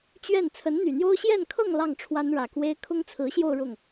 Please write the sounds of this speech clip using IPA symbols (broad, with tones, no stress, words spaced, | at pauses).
t͡ɕɥɛ˥˩n t͡sʰə˧˥nn̪y˨˩n̪jo˥ʊ̯ ɕjɛ˥˧nkʰɤ˥˧ŋ lɑ˥˩ŋʈ͡ʂʰwa˥nɻä˨˩kwe˥ɪ̯ kʰʊ˥ŋt͡sʰɹ̩˧˥ɕjo˥˧ʊ̯ ɻʊ˥˩ŋ